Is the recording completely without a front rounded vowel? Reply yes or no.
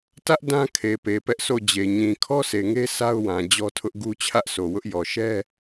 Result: yes